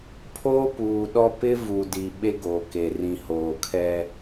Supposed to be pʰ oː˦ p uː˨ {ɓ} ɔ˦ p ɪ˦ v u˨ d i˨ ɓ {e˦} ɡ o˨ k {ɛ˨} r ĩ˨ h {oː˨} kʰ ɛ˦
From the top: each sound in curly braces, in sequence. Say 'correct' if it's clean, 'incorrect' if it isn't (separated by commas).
incorrect, correct, incorrect, correct